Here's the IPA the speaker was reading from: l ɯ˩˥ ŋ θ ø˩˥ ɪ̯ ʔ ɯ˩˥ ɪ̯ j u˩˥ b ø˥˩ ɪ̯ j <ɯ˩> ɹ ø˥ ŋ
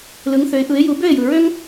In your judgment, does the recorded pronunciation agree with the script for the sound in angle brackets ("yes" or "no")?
yes